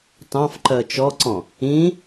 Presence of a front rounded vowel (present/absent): absent